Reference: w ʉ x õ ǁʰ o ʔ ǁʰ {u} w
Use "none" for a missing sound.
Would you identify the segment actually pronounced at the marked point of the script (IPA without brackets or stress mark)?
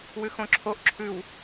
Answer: ʉ